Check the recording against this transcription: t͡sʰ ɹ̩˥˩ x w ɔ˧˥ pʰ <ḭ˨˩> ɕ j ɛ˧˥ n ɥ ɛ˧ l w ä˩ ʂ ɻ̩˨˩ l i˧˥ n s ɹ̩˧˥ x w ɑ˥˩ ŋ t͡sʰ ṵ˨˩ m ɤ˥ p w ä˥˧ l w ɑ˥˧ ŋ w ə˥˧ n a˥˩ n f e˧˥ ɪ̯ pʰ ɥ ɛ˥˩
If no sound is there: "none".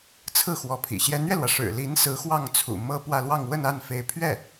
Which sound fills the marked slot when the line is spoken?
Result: ḭ˨˩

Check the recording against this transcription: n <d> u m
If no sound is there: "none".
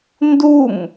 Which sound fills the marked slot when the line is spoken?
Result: d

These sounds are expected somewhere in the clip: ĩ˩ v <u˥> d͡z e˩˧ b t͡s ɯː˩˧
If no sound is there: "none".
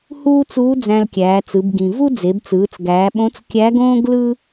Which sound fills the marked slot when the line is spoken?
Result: u˥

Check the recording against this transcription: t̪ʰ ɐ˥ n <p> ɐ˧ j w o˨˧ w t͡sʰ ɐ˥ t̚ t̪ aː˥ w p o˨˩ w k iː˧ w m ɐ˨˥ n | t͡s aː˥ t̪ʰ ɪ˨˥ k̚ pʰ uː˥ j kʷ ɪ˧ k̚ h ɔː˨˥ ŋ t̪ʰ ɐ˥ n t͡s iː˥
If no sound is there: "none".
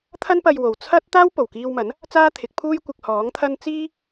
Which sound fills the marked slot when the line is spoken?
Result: p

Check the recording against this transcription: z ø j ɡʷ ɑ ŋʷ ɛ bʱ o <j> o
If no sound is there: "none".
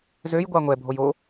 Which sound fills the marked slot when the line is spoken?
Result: j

